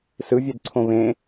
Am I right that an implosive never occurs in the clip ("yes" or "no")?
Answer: yes